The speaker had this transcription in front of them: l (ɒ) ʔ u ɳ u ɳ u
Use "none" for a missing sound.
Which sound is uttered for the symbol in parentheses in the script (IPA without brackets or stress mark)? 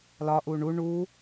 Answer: ɒ